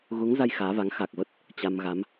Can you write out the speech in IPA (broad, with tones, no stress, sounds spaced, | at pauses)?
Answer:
ɣ u˨˦ ŋ z a˧ j x aː˨˦ v a˨˦ ŋ x a˨˩ k̚ v ə˦˥ t̚ | t͡ɕ a˧ m ɣ a˨˦ m